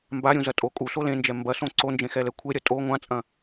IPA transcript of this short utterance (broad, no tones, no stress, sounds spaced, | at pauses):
m b a ɾʲ ũ z ɐ tʼ o kʼ u s o l ẽ n d͡ʒ ɛ m b ɐ s õ ǀ o n d͡ʒ ẽ x ɛ l ɛ kʷʰ e ɾʲ ɐ tʼ o ŋʷ ã t͡sʼ ɐ̃